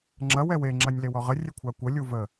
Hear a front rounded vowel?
no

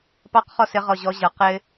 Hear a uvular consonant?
yes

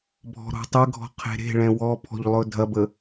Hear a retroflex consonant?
yes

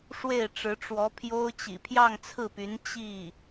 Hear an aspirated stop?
yes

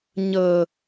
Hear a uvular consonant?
no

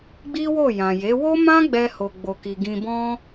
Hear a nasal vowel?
yes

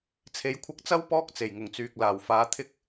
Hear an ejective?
no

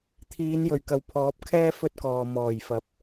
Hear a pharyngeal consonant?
no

